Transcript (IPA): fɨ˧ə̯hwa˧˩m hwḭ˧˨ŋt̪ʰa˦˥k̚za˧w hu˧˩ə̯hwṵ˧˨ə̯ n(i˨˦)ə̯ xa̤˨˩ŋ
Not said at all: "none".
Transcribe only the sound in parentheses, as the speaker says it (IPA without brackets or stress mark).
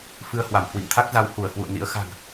ḭ˧˥